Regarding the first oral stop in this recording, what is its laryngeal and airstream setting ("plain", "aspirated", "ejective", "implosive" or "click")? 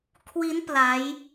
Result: aspirated